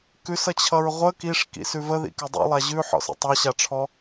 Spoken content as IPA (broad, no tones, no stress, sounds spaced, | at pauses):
k ʉ s ʌ t͡ɕʰ ʌ ɹ ʁʷ ə k i ʂ k ḭ s ʉ v ə ð ḭ k ɪ dˤ ḭ lˠ a ʑ ʉ ħ ɔ̰ s ḭ tˤ a ɕ a ʈ͡ʂʰ ɔ